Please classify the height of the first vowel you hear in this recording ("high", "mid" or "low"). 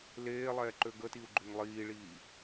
mid